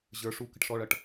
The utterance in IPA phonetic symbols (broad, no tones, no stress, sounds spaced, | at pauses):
ʑ ə˞ ʂ u k ə̤ ʈ ʂ ɔ ɭ ʌ ʈ